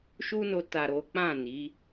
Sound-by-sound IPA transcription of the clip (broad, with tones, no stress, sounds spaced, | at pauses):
ʃ u˦ n o˧ t a˨ ɾ o˨˦ k͡p ã˦˨ n i˨˦